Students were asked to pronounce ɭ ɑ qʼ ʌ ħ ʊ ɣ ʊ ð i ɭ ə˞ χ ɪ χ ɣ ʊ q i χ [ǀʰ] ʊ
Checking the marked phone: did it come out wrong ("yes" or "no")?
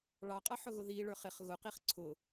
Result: no